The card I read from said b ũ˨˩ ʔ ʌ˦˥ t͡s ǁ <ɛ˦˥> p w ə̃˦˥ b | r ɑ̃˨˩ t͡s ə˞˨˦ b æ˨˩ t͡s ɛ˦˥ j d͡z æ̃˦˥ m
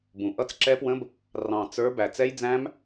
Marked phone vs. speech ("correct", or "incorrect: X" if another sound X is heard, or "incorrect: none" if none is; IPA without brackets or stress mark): correct